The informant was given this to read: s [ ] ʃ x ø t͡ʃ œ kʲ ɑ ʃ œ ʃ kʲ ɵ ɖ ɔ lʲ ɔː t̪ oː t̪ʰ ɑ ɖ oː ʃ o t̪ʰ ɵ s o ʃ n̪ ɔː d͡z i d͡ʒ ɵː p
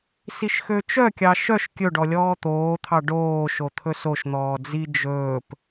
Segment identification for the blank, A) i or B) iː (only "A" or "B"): A